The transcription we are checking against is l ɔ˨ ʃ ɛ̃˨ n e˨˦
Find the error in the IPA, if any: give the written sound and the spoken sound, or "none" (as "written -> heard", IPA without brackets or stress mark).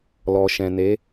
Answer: none